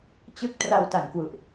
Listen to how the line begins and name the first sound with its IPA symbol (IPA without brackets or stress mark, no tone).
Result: t͡ɕ